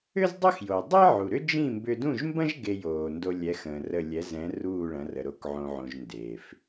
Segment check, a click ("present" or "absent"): absent